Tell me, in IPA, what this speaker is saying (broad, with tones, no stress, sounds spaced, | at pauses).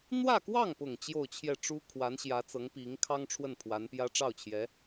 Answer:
n̪ w ä˥˧ k w ɑ˥˩ ŋ p ʊ˨˩ ŋ t͡ɕ j o˥˧ ʊ̯ t͡ɕʰ j ɛ˥˩ ʈ͡ʂ u˥ kʰ w a˧˥ n ɕ j ä˧˥ t͡s ɤ˧˥ ŋ p i˧˥ ŋ kʰ ɑ˥ ŋ ʈ͡ʂʰ w ə˥˩ n pʰ w a˧˥ n p j ä˥ ʈ͡ʂ ɑ˥˩ ʊ̯ t͡ɕʰ j ɛ˧˥